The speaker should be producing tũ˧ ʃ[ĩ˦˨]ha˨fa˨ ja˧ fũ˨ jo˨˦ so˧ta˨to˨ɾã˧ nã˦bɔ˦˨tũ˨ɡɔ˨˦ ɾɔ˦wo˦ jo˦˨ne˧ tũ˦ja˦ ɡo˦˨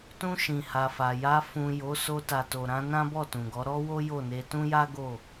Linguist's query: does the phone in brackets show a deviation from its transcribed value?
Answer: yes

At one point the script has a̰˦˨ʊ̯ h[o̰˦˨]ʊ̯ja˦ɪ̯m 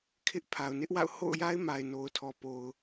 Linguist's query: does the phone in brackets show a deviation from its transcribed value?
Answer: no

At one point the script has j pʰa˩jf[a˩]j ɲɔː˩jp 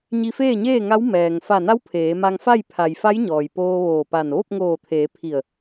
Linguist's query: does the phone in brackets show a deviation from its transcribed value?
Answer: yes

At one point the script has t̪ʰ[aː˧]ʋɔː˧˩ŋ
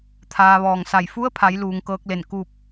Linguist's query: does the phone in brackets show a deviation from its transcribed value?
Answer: no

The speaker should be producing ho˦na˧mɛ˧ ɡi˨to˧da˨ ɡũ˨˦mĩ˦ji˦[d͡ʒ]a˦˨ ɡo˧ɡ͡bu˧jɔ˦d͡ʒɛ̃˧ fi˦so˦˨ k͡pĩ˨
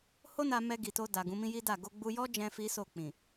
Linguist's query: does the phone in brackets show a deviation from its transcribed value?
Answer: yes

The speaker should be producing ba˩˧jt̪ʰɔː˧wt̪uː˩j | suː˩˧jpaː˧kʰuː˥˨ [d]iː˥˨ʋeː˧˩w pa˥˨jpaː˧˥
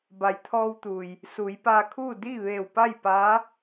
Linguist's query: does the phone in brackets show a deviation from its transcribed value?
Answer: no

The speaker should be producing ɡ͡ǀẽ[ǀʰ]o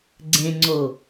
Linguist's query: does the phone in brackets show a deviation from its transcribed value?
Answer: yes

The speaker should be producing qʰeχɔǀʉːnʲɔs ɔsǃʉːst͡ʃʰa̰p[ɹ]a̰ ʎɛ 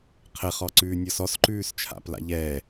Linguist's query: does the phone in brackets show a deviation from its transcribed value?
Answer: yes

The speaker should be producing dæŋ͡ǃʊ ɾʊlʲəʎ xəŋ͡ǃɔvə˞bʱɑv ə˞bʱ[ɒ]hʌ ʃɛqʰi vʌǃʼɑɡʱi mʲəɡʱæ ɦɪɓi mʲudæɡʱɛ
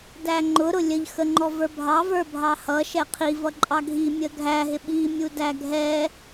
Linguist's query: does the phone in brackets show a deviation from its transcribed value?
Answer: yes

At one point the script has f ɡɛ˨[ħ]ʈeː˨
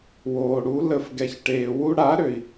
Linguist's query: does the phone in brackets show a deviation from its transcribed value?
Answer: yes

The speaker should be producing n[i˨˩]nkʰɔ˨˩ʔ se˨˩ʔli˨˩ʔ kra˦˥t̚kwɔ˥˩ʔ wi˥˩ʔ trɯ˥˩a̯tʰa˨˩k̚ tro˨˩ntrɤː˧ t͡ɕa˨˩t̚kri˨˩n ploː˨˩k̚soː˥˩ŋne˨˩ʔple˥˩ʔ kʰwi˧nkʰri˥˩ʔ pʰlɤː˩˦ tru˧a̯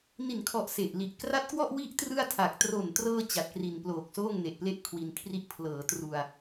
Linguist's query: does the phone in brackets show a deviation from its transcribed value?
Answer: no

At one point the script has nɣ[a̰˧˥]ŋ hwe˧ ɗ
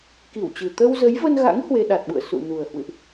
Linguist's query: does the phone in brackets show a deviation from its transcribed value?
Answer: no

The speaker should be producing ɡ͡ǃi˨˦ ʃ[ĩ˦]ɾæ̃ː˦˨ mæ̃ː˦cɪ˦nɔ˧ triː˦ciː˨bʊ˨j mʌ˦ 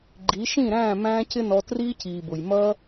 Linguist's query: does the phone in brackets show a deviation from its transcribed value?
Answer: yes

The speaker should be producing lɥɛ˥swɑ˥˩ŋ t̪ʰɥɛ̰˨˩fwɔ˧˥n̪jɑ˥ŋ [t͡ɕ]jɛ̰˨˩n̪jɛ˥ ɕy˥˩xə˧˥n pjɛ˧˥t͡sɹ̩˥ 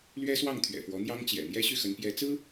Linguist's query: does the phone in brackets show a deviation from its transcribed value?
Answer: no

